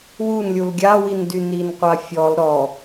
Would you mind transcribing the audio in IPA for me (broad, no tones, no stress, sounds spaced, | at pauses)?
w u n lʲ u l ɡʲ a w i n d y n i n qʷ a fʲ ɔ l ɾ ɔ